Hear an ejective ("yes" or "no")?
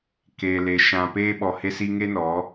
no